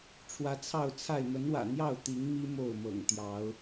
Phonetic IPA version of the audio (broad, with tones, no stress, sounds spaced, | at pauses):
ʈ͡ʂʰ w ä˨˦ t͡sʰ ɑ˥˨ ʊ̯ t͡sʰ a˥˨ ɪ̯ m ə˨˦ n w ä̰˨˩ n̪ j ɑ˥˨ ʊ̯ t̪ i˨˦ ŋ m i˦ m o˥˨ ʊ̯ m ɤ̰˨˩ ŋ t̪ j ɑ˨˦ ʊ̯